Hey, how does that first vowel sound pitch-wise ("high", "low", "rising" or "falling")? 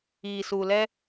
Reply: low